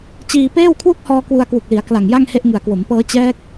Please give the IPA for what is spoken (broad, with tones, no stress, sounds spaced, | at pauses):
t͡ɕ iː˧ p eː˥˩ w kʰ w u˥˩ k̚ h ɔː˧ k w u˧ a̯ k w u˨˩ k̚ l i˩˦ a̯ k l a˨˩ ŋ j a˥˩ ŋ h e˥˩ ʔ ŋ ɯ˨˩ a̯ k w o˩˦ m p ɤː˦˥ t͡ɕ ɛː˦˥ k̚